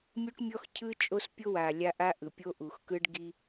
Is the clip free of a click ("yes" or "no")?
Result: yes